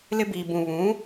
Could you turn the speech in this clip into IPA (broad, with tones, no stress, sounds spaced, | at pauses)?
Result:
l ɪ˦ b i˨ b ũ˨ β ũ˨˦